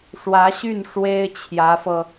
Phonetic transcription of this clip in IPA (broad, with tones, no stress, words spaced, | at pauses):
ʂwä˧˥ɕy˥˩n ʂwe˥ɪ̯ t͡ɕʰjä˧˥fɤ˧